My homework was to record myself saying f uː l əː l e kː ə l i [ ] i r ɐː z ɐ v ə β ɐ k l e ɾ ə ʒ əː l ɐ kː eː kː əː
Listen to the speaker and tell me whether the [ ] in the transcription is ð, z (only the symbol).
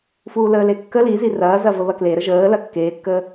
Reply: z